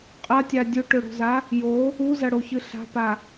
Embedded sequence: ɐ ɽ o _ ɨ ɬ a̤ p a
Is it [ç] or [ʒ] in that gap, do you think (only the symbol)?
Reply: ç